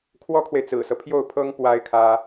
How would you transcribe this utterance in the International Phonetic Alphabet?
kʰwɔ˥kʰwe˨ɪ̯t͡sɹ̩˨˩sɤ˦ pʰjo˥˩ʊ̯pʰɤ˥ŋ pwa˥ɪ̯ kʰä˥

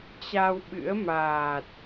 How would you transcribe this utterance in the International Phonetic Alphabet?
t͡ɕa˧wɓɨ̰˧˥ə̯ maː˨˩t̚

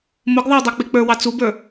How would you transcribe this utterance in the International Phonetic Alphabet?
mʊɡðˤʌw dˤɑk͡pik͡pə˞wɑ t͡subə˞

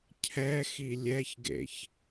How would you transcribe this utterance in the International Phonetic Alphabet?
cʰɛxi lʲɛçɡḛç

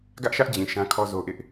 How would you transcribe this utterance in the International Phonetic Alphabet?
ɡä˦ʔʃä˦ʔd͡ʑĩ˨ ʃã˦kʰɔ˦ zo˦ʔɪ˦ʔ

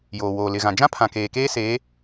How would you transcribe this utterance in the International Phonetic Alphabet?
joː˨woː˨lɪ˨ɣã˨ d͡ʒã˦pʰã˨ keː˨keː˦ seː˨˦

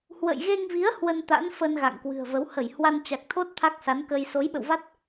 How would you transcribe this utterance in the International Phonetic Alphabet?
hwə̰˧˨jɣe˧ŋvi˨˦ə̯ hwə˧n t̪a̰˧˥nfəː˧n ɣa̰˧˨ŋkwɨ̤˨˩ə̯və˨˦w hə˧˩j hwa˧nt͡ɕa˨˩k̚t̪ʰo˦˥t̚ t̪ʰa˦˥k̚sa˨˦nkə˧j so˨˦jɓə̰˧˨wva˦˥t̚

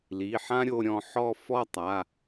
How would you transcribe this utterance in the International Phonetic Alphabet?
li˩˧˩ħã˥ɾʲo˧ ɾʲɔ̃˧ħɔ˥˧ fɔ˥˧tˤa˩˧˩

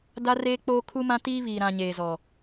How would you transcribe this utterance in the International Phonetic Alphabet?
da˦reː˦k͡poː˦ kʰu˦mã˦tiː˦ βiː˨ ɾã˨ ɲeː˨zɔ˨

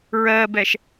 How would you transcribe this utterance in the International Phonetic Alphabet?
ɹɜbɛʃ

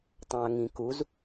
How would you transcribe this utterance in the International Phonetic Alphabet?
tˤãɐ̯ŋĩkuz

